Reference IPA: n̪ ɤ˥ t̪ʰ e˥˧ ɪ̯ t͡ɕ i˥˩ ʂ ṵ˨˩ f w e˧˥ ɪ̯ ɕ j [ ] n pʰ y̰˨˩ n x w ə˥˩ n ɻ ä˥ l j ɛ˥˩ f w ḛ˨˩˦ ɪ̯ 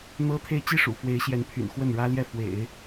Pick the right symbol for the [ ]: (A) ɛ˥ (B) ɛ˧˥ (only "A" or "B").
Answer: B